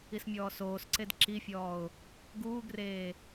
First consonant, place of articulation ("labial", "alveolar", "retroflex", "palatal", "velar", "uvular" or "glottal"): alveolar